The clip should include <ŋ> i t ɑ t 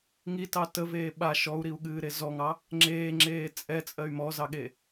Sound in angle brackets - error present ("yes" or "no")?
no